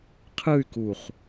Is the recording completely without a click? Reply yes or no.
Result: yes